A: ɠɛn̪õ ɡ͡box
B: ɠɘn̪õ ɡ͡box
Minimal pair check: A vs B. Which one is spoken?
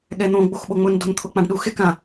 A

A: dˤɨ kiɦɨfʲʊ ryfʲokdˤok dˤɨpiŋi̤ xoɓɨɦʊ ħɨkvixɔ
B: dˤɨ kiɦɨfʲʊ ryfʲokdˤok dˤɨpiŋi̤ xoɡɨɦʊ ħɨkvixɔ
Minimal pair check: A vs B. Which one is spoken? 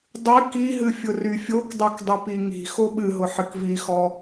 A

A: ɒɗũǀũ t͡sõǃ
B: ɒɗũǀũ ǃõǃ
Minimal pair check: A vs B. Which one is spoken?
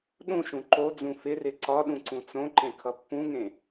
A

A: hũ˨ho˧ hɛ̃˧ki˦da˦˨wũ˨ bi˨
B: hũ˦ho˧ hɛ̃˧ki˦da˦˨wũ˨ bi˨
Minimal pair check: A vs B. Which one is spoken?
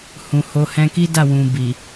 A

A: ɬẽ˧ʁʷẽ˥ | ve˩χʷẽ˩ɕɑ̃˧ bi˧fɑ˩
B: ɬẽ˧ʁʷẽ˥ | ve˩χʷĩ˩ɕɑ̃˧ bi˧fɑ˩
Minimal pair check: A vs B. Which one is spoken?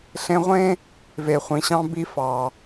B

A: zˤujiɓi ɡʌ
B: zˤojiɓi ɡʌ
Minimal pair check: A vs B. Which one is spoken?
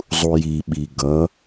A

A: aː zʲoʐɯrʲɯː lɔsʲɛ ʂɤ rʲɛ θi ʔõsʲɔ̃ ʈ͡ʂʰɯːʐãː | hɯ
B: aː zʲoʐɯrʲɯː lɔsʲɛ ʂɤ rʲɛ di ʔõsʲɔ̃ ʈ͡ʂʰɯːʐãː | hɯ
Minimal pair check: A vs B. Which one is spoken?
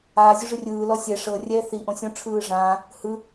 A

